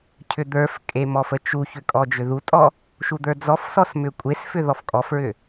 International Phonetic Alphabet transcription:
cʰʏd̪ə˞fkʼe mɔfət͡ʃuçʏ kʼɔd͡ʒʏðutʼɔ | ʃud̪ə˞d͡zɔfsɔs mʏkʷʼesfʏ ðɔfkʼɔfɹʏ

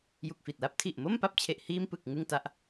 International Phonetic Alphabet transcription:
ju˨˩k̚fi˨˩t̚la˦˥p̚ tʰi˨˩ʔmo˥˩mpa˦˥p̚t͡ɕʰe˨˩ʔ hiː˧mpɯ˨˩k̚ ŋɯ˥˩ŋta˦˥ʔ

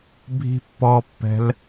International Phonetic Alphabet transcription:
bʱi̤pːɔpːɛ̤l

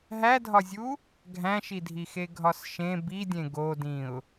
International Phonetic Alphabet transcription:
ɦædʱɒzʲu | ɡʱæ̃ʃidʱixe ɡʱɒsʃẽ bidʲẽ ɡodĩʊ̯

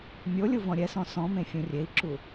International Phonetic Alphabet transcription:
mʲolʲu vɔ̃ɾʲɛsɔ̃ sɔ̃mẽ fʲũrʲei̯ǁu

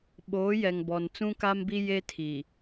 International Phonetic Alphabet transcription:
ɓoː˨˦jɛ˨ŋbɔ˨n t͡sũ˦ka˦mbi˦ je˦tʰi˨

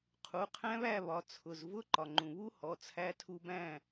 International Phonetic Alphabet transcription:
qʰu˩˧˩qʰæ̃˦˥βæ˥˨βɒ˩˧˩ t͡sʰʊ˩˧˩z vʊ˦˥ǃɒ˩ŋ͡ǃũ˩ βu˦˥hɔ˩˧˩t͡sʰæ˧ tʰu˧bæ̃˥˨

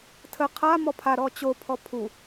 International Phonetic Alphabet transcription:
tʰə qʰa mɔpʰaɾɔ t͡ɕopʰɔ pʰu

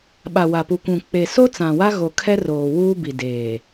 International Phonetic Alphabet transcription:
ɓa˨ wa˨pu˨kʷũ˨ k͡pe˨so˦ t͡sã˨wa˦ɣo˨kʰɛ˦ roː˨wuː˦bi˨ deː˨

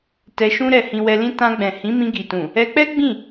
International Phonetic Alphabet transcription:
tɛ˧ʃũ˦ ɾɛ˧hĩ˧wɛ˧lĩ˦ tã˧ɡ͡bɛ̃˨ hĩ˨˦mĩ˧ɡi˨tũ˨ | ɛ˧k͡pɛ˦ ɡ͡bĩ˦˨

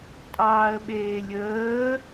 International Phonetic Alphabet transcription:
tʼɑːə̯ɓeːlʲəː

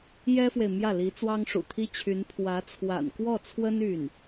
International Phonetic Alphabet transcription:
jɛ˥fwe˨ɪ̯ mjä˥˩li˧˥ t͡swɑ˥ŋʂṵ˨˩t̪ʰi˥t͡ɕʰy˧˥n pʰwä˧˥t͡sʰwa̰˨˩nkwɔ˥˩t͡sʰwə˥n y˥˩n

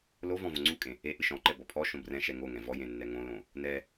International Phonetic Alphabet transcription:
lovɔ̃ võŋ͡ǀukʼẽ | e ʔɨʃɔ̃ǃɛ bɔpʰɔʃõ brɛ̃ʃɛ ŋoŋɛ̃ vɔjẽ nːɛŋõlõ | nɛ

